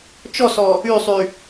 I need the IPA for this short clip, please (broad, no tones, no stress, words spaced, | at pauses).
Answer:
t͡ʃɔsɔ | ysˤy